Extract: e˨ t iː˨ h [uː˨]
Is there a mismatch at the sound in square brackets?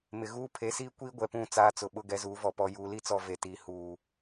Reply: no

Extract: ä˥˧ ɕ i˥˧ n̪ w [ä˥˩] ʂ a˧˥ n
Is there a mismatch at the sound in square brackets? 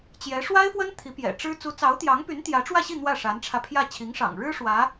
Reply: no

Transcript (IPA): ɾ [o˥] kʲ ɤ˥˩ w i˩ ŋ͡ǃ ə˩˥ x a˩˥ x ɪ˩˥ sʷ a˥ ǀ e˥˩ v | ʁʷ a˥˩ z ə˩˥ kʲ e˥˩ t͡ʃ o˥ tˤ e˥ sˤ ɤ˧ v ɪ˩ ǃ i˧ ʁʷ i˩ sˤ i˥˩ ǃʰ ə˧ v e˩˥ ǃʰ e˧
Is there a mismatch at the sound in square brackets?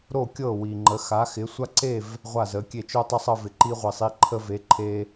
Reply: yes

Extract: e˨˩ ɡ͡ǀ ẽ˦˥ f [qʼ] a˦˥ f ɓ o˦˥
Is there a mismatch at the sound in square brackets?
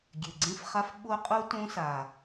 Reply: yes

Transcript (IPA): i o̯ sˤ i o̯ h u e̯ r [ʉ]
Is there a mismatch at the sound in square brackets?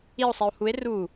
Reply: yes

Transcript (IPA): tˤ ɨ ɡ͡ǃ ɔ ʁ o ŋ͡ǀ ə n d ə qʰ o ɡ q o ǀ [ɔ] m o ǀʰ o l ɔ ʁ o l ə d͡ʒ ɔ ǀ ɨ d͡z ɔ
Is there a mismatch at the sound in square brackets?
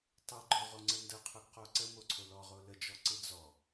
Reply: yes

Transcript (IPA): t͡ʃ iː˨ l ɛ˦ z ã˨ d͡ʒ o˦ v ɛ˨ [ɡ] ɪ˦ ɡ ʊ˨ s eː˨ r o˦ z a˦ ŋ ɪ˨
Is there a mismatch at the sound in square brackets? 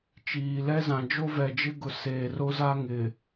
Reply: yes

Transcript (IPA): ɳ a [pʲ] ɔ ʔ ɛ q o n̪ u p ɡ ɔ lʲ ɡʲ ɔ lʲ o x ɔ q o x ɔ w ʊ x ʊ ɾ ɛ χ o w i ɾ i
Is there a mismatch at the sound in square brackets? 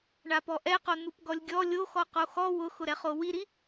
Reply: yes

